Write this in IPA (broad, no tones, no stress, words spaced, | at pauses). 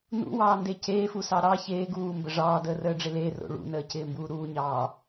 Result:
nṵwɑːnde ceːfusɑ ɾɑ çeː ɡuːmbə ʐɑːdəːrəːɖ͡ʐɪ lero̰ ɭṵnəːcɪːmbuː ɾuːɲɑː